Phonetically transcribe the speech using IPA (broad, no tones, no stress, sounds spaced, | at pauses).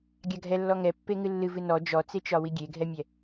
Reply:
ɡʲ a ɡʱ ɛ lː ɔ ŋ ɛ pː e ŋ ɨ lː ɨ v ɨ n ɔ d͡ʒ ɔ t͡s e t͡ʃ ɒ w i ɡʲ e ɡʱ ɛ mʲ ɛ